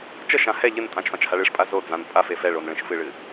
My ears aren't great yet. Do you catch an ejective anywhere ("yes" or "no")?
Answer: yes